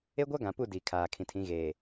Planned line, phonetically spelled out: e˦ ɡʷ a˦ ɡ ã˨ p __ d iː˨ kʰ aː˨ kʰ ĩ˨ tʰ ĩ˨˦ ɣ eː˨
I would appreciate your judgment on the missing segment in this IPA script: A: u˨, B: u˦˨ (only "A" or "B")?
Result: B